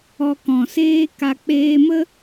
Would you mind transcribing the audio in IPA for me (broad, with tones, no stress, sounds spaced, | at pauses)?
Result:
ɔ˧ k ɔ̃˨ s eː˦ k a˧ k͡p eː˧ m ə˦